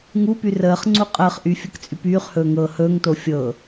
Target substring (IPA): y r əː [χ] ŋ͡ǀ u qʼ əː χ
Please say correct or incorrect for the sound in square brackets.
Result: correct